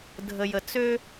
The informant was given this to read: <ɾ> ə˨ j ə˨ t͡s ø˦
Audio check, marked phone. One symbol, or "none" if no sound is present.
dʱ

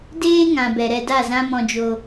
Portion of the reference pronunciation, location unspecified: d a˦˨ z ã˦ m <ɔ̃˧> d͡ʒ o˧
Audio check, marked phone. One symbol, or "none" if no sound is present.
ɔ̃˧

